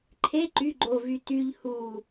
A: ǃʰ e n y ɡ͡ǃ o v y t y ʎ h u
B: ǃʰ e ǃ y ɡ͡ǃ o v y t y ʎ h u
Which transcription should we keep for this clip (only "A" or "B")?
B